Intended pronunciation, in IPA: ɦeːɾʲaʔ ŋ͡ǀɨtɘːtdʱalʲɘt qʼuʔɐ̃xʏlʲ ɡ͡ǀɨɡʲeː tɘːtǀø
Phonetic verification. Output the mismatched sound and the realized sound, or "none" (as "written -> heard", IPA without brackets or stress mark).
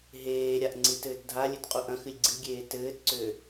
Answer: ʏ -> ɨ